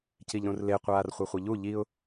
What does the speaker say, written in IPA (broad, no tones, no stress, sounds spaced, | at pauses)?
c i ʎ ɾ ũ r l e qʷ aː r χʷ ʌ χʷ i ʎ u ʎ i ʊ̯